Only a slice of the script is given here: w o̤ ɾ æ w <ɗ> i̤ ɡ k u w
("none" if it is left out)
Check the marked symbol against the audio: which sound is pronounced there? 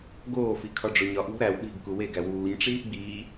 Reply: ɗ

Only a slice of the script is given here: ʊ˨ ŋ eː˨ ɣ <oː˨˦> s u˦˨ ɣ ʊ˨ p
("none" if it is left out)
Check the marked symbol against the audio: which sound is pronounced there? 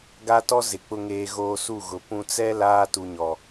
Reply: oː˨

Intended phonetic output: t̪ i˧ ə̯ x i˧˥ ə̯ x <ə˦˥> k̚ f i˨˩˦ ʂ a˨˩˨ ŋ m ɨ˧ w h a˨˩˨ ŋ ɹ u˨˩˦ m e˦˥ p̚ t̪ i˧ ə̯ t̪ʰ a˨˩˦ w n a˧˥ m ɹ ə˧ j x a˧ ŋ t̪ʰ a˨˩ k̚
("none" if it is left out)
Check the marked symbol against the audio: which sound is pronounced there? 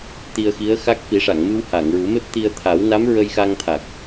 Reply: a˦˥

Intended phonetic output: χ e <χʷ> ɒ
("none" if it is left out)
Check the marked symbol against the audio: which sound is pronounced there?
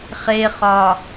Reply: χ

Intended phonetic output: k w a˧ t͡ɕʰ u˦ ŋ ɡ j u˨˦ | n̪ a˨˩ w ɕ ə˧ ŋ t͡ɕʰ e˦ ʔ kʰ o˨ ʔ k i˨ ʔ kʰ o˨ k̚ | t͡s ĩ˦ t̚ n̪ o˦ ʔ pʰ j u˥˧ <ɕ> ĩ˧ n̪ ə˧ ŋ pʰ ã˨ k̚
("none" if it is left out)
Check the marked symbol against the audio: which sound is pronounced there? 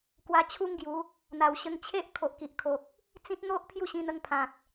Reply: ɕ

